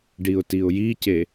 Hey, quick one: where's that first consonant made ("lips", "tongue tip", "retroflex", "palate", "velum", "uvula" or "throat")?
retroflex